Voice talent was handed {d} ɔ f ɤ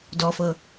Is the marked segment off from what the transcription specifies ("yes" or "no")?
no